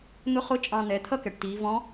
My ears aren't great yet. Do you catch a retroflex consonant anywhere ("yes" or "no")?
yes